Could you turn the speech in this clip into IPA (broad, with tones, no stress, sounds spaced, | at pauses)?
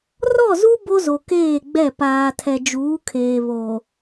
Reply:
r ɔ˦˨ z u˦ b o˦ z o˨ k eː˦˨ ɡ͡b ɛ˦˨ p aː˨ tʰ ɛ˨ d͡ʒ uː˨˦ kʰ eː˨ β o˨